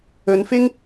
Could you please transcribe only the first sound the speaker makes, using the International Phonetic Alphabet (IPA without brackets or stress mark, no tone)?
ɵ